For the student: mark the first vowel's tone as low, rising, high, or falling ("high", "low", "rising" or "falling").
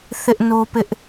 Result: high